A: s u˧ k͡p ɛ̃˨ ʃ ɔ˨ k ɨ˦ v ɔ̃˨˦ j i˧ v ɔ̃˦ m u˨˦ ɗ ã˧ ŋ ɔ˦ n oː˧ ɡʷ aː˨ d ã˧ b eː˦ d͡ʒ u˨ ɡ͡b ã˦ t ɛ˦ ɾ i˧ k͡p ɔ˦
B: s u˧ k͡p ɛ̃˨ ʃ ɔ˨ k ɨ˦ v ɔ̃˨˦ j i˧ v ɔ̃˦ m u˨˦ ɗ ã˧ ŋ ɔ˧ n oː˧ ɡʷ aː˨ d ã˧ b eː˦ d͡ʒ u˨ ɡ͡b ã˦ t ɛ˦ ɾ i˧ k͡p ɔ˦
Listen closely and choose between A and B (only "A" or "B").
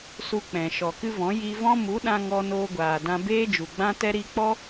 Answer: A